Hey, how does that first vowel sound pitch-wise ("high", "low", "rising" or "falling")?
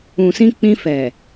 low